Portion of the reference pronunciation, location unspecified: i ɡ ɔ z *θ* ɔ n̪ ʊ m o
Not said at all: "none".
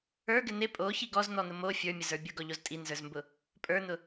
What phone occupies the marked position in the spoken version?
n̪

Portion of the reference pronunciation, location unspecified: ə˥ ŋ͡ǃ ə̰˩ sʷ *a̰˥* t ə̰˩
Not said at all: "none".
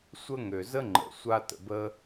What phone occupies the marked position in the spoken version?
a˥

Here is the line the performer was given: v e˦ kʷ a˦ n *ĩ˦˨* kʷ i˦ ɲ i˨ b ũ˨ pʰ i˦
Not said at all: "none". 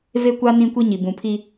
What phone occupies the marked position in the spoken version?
ĩ˦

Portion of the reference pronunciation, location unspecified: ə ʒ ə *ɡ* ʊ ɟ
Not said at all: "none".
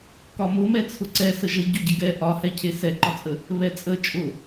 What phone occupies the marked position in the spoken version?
ɟ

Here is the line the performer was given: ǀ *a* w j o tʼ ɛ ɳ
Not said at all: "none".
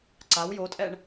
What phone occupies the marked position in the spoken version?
a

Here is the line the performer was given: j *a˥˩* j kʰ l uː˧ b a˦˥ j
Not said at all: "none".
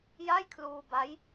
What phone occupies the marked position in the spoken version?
a˥˩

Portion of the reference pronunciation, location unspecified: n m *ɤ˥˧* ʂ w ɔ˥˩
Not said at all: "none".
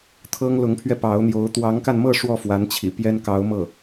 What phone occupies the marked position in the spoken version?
ɤ˥˧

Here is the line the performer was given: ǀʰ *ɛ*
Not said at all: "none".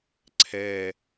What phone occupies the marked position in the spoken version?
ɛ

